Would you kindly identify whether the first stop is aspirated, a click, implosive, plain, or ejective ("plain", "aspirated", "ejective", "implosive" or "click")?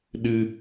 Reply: implosive